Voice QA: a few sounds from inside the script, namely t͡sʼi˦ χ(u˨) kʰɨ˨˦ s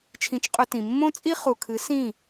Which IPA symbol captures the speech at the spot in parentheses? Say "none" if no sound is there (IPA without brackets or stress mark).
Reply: u˨